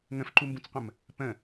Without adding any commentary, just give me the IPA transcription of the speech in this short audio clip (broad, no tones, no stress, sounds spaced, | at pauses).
ŋ ə̃ f ǃ u m b ũ t͡s qʷ ə̃ m | p ə̃